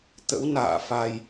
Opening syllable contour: rising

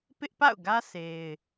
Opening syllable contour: high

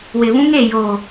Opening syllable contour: low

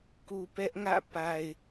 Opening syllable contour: low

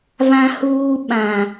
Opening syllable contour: high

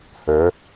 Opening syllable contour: rising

